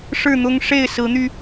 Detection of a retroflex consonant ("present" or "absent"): present